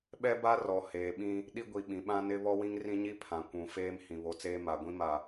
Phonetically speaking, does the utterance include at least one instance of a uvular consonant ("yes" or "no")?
no